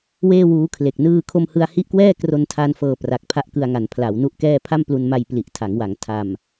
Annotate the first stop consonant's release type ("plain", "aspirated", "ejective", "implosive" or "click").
aspirated